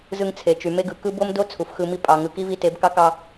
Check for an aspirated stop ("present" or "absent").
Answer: present